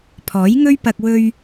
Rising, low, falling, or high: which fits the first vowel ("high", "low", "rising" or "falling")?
rising